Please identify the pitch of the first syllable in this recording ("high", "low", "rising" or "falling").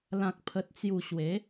low